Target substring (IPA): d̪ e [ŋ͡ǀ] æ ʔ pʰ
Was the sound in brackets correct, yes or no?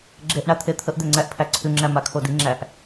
yes